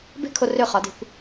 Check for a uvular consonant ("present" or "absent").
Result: present